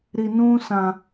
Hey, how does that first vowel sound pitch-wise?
low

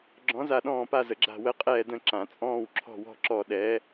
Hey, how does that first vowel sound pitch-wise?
rising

